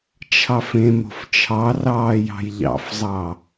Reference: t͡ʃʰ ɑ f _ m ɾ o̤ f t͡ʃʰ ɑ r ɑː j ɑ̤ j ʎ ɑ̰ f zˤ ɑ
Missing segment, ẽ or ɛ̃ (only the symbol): ẽ